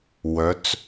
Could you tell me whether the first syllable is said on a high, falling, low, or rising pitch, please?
rising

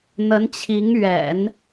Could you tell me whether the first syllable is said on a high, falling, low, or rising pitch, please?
rising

